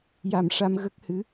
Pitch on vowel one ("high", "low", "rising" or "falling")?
low